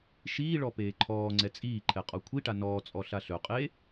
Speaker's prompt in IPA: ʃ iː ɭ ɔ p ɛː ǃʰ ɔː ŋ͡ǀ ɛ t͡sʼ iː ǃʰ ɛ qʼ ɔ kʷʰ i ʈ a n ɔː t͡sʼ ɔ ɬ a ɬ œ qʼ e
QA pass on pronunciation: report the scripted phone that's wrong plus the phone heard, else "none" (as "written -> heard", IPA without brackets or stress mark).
ɛː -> eː